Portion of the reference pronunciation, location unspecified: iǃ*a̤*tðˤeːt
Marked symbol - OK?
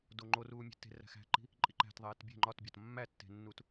no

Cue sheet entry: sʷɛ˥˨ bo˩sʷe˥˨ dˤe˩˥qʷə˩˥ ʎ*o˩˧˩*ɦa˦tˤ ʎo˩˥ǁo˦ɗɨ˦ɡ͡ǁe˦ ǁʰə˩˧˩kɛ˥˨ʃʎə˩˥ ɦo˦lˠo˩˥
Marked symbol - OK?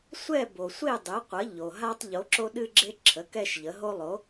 no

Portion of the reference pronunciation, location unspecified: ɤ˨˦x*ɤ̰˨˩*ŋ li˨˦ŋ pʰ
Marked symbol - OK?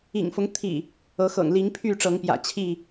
yes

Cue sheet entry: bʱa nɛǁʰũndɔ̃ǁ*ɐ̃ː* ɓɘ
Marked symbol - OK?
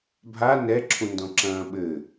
yes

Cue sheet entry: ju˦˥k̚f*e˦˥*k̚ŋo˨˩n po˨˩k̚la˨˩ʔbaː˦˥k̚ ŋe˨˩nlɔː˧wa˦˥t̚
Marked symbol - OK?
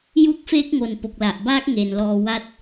yes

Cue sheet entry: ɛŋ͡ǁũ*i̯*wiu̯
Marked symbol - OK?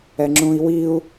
yes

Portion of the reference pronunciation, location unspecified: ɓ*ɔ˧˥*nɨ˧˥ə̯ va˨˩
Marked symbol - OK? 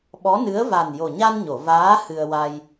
yes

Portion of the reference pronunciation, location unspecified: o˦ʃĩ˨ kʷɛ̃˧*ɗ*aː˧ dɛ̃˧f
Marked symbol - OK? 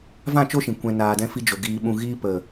no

